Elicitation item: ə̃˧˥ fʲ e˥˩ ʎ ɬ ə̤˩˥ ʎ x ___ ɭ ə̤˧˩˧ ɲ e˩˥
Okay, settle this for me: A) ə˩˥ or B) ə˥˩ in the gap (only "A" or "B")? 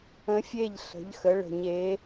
A